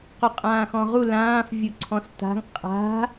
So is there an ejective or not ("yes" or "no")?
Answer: yes